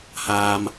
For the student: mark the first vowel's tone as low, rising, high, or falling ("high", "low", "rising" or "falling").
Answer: low